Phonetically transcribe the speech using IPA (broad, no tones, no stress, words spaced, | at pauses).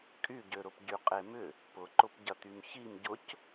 kʼyɟøɾʊp ɟyqʼemʏ | pʊǃʊpɟɐt̪ym çim ɟʊc